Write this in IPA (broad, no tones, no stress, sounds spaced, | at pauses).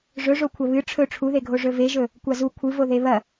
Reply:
ʐ ɵ ʐ o kʷʰ ɐ β ɨ ʈ͡ʂʰ ɵ ʈ͡ʂʰ u ð e ɡʱ o ʐ ɵ v e ʒ ɵ | kʷ a z u kʷʰ ɨ v o ð e β ɐ